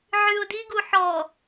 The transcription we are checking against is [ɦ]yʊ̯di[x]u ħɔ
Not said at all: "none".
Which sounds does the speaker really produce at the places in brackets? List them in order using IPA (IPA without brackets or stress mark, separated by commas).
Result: ʕ, ɡ